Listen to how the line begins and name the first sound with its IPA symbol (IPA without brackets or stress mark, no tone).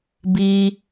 b